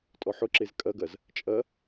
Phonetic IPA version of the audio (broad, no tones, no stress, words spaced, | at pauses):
tʼɔħʊǁez kʼɐɡɐz | t͡ʃʼɐ